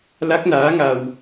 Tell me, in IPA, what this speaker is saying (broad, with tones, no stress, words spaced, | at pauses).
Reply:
la˦˥k̚naː˧˥ ŋa˧w